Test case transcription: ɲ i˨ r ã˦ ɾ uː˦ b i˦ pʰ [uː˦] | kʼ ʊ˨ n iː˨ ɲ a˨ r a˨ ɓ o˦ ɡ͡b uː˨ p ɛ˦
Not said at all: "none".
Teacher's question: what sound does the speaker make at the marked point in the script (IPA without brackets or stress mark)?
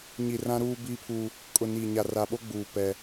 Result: uː˦